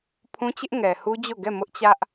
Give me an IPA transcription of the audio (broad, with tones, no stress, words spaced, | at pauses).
pʰũ˦t͡ɕɪ˦ʔ ŋɛ˨hu˦ d͡ʑo˦˨ɡɛ˦˨ mʊ˦ʔt͡ɕä˦ʔ